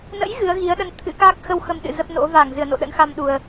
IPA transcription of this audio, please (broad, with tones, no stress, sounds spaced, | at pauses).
n ə̰˧˥ j ɣ ɨ˨˦ ə̯ ɣ i˨˦ ə̯ ɗ ə˧ n t̪ʰ ɨ̰˧˥ k a˦˥ k̚ x ə˧ w x ə˧ m ɗ ɨ̰˧˨ z ə˦˥ p̚ n o̰˧˥ v a˧˩ ŋ z ɨ˧˩ ə̯ n o̰˧˨ ɗ ə̰˧˥ n x a˧ m ɗ u˨˩ ə̯